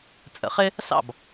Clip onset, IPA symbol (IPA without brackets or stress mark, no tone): t͡sʼ